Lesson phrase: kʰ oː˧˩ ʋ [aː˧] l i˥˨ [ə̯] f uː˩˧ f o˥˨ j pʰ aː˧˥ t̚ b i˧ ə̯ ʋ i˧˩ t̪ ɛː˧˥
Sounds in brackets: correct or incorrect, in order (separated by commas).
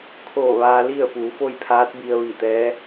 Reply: correct, correct